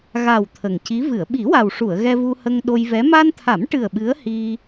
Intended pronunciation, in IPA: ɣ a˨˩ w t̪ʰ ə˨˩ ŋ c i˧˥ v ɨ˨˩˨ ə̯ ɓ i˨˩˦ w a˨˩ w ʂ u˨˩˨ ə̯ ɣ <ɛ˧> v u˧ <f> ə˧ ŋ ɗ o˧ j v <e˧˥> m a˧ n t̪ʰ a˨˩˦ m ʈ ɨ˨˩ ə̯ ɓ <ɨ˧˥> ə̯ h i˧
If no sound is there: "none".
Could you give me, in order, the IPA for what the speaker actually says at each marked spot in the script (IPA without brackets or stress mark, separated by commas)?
ɛ˧, h, ɛ˧˥, ɨ˧˥